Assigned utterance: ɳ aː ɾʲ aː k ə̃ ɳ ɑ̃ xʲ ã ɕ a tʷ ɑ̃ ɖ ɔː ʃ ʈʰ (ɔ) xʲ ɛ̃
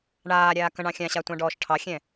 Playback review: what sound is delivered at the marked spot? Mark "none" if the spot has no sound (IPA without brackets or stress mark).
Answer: ɑ